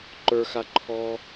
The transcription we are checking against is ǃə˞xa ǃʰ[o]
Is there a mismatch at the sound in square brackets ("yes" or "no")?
yes